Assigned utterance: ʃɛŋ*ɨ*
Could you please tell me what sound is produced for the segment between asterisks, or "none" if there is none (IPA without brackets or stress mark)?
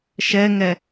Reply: ɛ